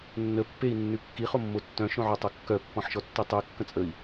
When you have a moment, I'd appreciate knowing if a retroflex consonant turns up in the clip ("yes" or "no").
no